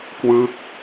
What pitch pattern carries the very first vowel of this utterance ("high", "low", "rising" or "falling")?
falling